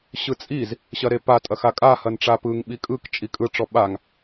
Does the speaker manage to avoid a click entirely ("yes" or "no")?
yes